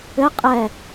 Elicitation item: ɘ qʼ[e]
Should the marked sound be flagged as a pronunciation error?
yes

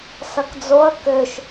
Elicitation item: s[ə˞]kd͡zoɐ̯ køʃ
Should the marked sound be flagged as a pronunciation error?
yes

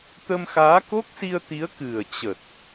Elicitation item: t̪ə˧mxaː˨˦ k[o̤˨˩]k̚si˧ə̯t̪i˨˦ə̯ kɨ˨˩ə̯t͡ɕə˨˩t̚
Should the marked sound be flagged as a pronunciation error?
yes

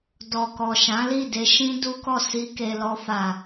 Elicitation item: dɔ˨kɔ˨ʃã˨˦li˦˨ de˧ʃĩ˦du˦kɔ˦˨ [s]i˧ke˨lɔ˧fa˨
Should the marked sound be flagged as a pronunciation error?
no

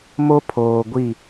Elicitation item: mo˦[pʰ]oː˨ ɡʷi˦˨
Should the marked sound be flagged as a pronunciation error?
no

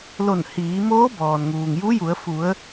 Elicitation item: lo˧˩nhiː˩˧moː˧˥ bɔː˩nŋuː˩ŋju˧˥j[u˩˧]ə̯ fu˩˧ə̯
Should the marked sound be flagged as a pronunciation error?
no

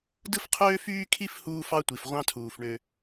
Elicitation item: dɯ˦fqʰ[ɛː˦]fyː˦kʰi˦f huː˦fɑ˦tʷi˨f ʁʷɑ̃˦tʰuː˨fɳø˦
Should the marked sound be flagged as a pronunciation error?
yes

